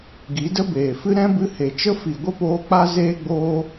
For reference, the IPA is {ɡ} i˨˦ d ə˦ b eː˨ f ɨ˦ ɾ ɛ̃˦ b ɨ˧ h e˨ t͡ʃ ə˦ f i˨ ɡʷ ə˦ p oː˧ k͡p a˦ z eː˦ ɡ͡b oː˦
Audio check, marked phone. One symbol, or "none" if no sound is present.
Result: ɡ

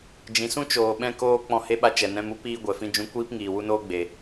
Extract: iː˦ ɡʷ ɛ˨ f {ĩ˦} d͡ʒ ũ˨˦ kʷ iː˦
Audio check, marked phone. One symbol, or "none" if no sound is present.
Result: ĩ˦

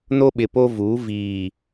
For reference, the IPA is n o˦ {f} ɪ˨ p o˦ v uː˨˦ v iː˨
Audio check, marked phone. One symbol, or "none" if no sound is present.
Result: ɓ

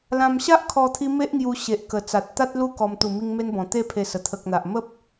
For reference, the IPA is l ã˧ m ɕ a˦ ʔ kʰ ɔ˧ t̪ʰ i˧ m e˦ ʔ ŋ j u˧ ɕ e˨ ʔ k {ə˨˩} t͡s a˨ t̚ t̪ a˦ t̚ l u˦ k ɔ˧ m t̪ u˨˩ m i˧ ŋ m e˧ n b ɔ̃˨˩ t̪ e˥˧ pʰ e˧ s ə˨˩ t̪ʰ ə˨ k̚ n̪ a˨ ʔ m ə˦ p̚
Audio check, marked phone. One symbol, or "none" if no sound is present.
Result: ə˨˩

